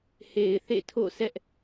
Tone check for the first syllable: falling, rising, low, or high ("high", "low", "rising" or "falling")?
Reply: low